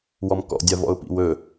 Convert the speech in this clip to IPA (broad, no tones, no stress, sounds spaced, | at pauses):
w ɔ m k ɔ̰ dʲ a v ɔ̰ ʊ̯ p ḭ w ɵ